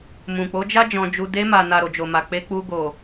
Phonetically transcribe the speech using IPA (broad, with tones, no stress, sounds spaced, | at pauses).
m ũ˨ k͡p o˨˦ d͡ʒ a˦ d͡ʒ ɔ̃˧ d͡ʒ u˧ d e˧ m a˨ n a˨ ɾ o˨ d͡ʒ o˨ m a˨ k͡p e˧ k͡p u˧ ɡ o˨